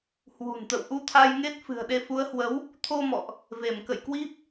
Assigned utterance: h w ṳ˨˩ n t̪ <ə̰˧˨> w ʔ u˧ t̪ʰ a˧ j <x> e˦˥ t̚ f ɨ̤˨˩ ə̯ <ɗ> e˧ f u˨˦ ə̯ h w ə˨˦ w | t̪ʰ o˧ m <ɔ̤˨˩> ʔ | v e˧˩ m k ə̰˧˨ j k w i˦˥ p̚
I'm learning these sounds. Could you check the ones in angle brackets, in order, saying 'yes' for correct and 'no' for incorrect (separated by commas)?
yes, no, yes, no